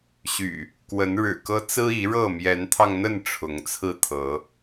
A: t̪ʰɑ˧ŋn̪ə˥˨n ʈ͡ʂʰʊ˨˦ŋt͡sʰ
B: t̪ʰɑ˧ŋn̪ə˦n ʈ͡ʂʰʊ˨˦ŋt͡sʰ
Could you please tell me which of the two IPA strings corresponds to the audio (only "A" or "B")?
A